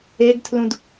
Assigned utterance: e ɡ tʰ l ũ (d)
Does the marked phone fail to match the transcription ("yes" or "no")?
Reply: no